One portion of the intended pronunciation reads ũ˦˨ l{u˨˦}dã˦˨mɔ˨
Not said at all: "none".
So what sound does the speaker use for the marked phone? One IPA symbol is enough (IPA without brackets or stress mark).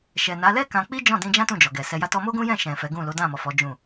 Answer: o˨˦